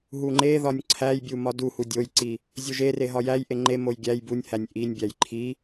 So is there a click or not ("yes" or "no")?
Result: yes